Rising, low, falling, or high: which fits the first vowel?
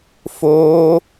high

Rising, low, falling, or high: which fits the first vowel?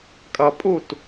low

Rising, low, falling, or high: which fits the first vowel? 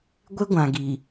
high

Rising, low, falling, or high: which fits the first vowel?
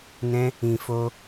high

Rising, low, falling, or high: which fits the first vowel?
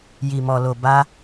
low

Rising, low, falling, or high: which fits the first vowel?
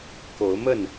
rising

